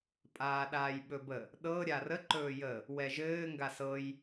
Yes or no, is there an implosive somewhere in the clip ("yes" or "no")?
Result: yes